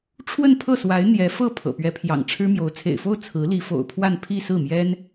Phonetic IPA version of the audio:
ʈ͡ʂʰwə˥˧npʰɤ˥˩swa˧˥ɪ̯ n̪jɛ˧˥ fɤ˥˩ pʰɤ̰˨˩pɥɛ˧˥pʰjɑ̰˨˩ŋ ʈ͡ʂʰɻ̩˥mjo˧˥ʊ̯ t͡sʰḛ˨˩ɪ̯fo˥˩ʊ̯ t͡sʰɹ̩˧˥ li˧˥fo̰˨˩ʊ̯pʰwa˥˧n pʰi˥˧sɹ̩˥˩mjɛ˥n

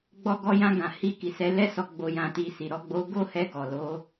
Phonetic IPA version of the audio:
ɡ͡bɔ˧ɡɔ˧jã˧ɡã˨ hi˧ki˨sɛ˧ lɛ˧sɔ˨ ɡ͡bo˨jã˨ti˨ si˨ɾɔ˨˦ɡ͡bo˧ ɡo˦hɛ˧ ɡɔ˨lo˧

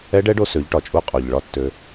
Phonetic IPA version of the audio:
ɛ˧˥ɖɛ˧˥ɖo˧ sø˩˧ʎʈɒ˩t͡ʃʼu˧ qʼo˩ʎ ɭɒ˧˥tːø˧

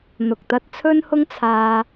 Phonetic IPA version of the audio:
n̪ʊ˨k̚t̪ɐ˥t̚ t͡sʰɵ˥nhʊ˥ŋ t͡sʰaː˧

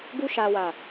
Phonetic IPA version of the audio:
ɡu˧ʃa˨wa˨

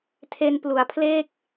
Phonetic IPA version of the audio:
tʰe˧nplu˩˦a̯pʰle˥˩k̚

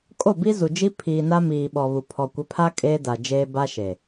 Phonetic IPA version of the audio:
kʼo˦˨ bi˦zu˨d͡ʒi˦ pʰiː˨na˦miː˨ ɓɔ˨βu˨ pʰɔ˨kʷɪ˨˦pʰa˦ kʼeː˦da˨d͡ʒeː˦ ba˦ʃe˨

